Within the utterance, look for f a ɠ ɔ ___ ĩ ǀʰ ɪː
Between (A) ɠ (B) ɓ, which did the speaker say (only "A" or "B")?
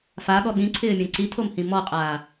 A